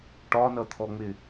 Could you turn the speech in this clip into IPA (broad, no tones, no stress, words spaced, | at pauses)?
ʈɒnʌt̪ʰɔŋ͡mɪ